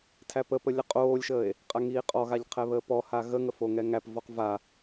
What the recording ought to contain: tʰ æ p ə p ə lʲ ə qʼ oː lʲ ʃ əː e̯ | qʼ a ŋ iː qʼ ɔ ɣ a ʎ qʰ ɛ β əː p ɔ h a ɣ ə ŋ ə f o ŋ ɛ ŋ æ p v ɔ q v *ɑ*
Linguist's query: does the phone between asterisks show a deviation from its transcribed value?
yes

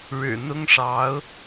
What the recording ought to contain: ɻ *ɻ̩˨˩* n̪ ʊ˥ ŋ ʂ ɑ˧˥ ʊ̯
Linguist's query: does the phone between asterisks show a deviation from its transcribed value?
no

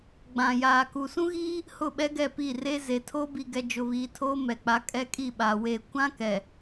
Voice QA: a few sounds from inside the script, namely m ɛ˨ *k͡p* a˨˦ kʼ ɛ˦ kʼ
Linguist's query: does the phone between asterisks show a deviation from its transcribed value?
no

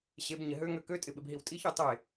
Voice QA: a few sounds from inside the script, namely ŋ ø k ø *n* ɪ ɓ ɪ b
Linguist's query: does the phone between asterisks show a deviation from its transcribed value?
yes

